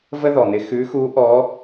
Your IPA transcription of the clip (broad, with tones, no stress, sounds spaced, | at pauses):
v ə˥ ð ɔ˩ n̪ ɪ˧ x ʉ˧˥ x u˧˥ ʔ ɔ˧˥